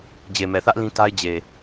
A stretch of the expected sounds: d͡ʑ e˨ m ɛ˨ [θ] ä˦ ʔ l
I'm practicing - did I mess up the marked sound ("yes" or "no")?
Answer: no